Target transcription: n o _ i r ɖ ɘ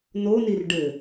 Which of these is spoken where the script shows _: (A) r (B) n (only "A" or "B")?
B